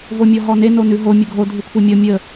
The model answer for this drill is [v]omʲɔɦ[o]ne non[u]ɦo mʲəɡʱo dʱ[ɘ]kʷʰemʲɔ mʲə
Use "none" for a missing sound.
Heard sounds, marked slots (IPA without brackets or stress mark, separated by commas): v, ɔ, ʉ, ʉ